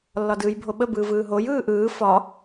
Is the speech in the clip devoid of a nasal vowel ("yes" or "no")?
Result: yes